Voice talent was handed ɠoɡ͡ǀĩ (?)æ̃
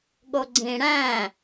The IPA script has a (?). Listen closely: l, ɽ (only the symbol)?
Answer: ɽ